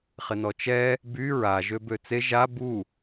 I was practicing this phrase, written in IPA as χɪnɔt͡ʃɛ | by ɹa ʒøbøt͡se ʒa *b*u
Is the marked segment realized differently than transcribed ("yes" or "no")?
no